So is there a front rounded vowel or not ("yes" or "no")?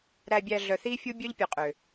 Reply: yes